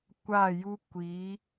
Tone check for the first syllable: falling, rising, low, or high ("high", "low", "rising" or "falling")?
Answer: falling